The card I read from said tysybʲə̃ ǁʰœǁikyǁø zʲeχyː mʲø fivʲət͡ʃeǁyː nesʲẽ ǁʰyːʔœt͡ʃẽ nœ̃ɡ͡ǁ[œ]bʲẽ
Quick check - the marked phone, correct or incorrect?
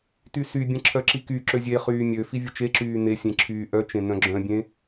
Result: incorrect